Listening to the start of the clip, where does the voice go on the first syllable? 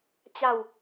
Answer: falling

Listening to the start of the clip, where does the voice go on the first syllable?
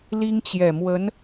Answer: high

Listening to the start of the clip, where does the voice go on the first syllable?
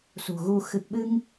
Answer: low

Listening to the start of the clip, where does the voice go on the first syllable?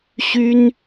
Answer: high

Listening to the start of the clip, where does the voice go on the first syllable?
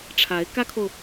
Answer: rising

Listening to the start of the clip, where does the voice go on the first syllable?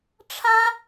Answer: high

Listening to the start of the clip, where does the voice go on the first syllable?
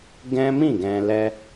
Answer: high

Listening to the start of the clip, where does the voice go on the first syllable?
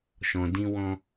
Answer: low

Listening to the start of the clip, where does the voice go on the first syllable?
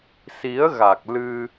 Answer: rising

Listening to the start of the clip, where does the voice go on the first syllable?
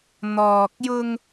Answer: low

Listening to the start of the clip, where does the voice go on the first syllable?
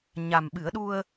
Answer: low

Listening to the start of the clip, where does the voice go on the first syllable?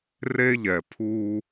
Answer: high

